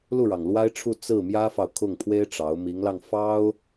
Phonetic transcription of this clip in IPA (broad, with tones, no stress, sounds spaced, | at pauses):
l u˥˩ ɻ ɑ˩ ŋ l w a˥ ɪ̯ ʈ͡ʂʰ u˥˧ t͡s ɹ̩˥˩ m j ä˥ f ɑ˨ ʊ̯ kʰ ʊ˥˩ ŋ pʰ w e˥ ɪ̯ ʈ͡ʂ ɑ˧˥ ʊ̯ m i˧˥ ŋ l ɑ˧ ŋ f ɑ˥ ʊ̯